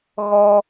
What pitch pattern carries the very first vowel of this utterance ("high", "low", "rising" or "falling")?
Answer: high